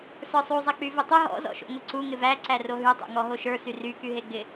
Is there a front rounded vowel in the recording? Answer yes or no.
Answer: yes